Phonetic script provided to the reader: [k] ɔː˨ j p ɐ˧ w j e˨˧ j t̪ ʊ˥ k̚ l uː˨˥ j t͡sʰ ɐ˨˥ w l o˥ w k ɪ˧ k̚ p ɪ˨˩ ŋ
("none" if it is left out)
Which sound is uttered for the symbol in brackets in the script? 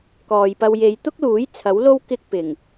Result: k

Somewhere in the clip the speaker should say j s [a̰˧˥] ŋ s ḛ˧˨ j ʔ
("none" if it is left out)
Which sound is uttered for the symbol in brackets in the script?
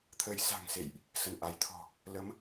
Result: a̤˨˩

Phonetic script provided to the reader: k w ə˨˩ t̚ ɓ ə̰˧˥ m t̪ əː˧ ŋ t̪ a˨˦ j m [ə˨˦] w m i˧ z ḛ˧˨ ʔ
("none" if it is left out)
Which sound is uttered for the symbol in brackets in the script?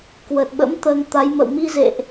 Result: ə̰˧˨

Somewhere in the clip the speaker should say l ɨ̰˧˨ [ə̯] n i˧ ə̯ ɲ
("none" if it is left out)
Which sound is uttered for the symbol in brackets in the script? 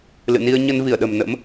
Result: none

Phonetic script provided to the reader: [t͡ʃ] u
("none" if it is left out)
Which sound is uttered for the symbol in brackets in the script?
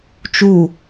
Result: t͡ʃ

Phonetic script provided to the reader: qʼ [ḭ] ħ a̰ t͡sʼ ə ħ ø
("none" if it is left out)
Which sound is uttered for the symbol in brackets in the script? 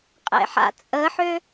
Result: ḛ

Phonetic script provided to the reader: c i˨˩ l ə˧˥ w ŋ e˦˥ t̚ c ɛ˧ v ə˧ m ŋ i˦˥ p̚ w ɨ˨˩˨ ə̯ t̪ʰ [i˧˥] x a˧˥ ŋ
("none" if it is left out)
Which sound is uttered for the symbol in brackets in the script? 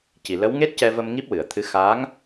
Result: ɨ˧˥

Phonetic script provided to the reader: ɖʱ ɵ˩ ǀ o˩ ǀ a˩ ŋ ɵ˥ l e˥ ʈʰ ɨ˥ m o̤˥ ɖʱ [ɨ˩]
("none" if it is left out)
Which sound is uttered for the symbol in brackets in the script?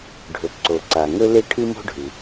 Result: ɨ˩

